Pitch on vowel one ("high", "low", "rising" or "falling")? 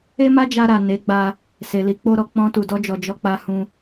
high